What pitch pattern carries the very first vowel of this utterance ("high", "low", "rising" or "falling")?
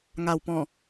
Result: low